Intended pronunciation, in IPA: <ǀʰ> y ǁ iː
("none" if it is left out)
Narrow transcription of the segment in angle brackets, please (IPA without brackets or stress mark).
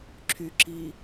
ǁʰ